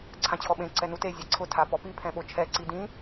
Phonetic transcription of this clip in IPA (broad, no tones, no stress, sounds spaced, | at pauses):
ǀʰ ã t͡ɕʰ ɔ ɓ ẽ ǀ ɛ n u t e zʲ a ǀʰ ʊ tʰ a p ɔ p i pʰ ɛ̃ ɓ o t͡ʃʰ ɛ ǀ i d ĩ